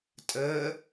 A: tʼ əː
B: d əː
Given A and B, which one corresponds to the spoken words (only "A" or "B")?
A